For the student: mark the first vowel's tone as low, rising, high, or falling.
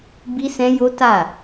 high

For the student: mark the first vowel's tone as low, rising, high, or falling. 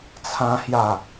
high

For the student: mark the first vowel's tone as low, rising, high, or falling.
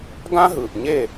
high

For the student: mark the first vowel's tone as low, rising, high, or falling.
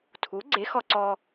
rising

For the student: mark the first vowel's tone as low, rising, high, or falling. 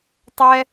high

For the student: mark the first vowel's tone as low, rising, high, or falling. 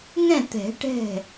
falling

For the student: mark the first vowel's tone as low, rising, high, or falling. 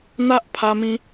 high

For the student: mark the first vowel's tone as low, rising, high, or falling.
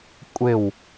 falling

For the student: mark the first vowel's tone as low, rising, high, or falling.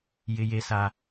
high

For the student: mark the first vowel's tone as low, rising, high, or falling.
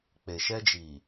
low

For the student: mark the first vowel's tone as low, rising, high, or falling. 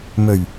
low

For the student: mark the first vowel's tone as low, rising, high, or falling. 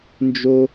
high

